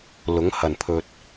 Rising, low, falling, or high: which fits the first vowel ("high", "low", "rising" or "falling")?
rising